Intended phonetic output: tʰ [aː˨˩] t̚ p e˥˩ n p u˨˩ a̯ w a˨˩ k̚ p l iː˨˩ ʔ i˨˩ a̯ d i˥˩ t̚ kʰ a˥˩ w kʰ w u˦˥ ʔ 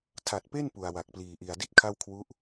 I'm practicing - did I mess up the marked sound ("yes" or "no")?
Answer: yes